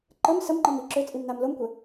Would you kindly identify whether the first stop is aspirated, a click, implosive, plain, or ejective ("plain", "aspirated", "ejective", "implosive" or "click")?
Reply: click